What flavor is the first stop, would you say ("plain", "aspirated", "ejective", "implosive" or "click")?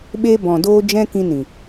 implosive